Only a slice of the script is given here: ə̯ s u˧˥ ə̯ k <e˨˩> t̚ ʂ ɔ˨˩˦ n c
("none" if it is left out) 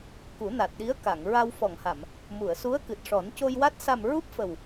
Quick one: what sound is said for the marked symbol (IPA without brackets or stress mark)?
ɨ˨˩